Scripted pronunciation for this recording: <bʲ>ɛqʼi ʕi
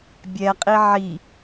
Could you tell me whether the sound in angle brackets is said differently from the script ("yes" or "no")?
no